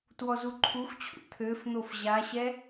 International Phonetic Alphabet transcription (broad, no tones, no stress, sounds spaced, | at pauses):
t w ɔ z u ǃʰ u x t͡ɕʰ ṵ t̪ʰ ø f n̪ o f ʑ a ɕ ɛ